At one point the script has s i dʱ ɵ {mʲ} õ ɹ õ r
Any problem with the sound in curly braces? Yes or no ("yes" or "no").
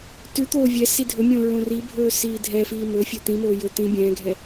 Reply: no